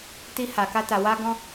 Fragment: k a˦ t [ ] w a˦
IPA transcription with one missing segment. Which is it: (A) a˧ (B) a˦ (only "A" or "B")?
A